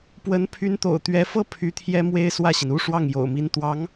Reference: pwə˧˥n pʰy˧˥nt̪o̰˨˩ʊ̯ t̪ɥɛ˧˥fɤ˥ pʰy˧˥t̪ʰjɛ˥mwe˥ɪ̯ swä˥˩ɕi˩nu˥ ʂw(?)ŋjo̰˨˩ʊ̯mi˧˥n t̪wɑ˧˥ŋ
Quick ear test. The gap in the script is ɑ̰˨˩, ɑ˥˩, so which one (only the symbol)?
ɑ˥˩